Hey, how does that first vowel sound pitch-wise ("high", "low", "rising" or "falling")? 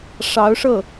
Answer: rising